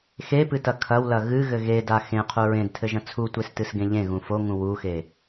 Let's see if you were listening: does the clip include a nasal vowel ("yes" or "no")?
yes